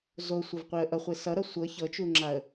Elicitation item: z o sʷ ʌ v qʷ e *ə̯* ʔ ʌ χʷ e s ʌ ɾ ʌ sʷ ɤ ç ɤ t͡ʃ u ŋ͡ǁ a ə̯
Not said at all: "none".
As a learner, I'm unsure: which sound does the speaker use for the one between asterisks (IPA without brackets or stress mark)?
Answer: ə̯